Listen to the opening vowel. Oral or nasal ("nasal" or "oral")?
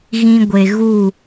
nasal